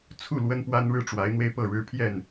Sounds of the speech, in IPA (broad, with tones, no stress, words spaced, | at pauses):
t͡sʰu˥˨ lwə˦npwa˦nɻɻ̩˦ ʈ͡ʂwa˨˦ɪ̯n̪we˧ɪ̯ pɤ˥˨ɻɻ̩˦ pʰjɛ˥˨n